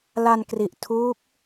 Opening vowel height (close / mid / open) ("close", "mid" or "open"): open